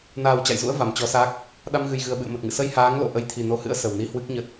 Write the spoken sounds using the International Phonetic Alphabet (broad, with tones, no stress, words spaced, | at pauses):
naː˨˩w t͡ɕa̰˧˨jzṵ˧˥ə̯ va˧˩mt͡ɕɔ˨˦sa˦˥k̚ | ɗa˧mɣɨ˨˩jɣɨ˨˩ə̯ ɓɨ̰˧˨ə̯mə˨˩t̚ŋɨ̰˧˨ sə˧jhaː˨˦ŋlo̰˧˨ ʔə˨˦jt̪ʰi˨˩no˨˦hɨ̰˧˥ə̯ sə˨˩wni˧hwɨ˦˥k̚ɲə˦˥t̚